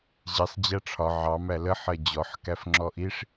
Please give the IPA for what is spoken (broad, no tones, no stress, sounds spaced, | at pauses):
ʑ i sˤ d͡ʑ æ ʈ͡ʂʰ ɒ ʕ ɑ m æ l ə ħ ɜ d͡ʑ ɔ ħ k æ f ŋ͡ǁ ɔ ʔ i ʂ